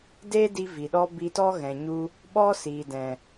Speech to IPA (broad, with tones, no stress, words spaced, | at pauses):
de˦di˧ vi˨ɗɔ˦ bi˧tɔ˦ɣɛ̃˨ɲu˧ | ɓɔ˦siː˨ dɛ̃˨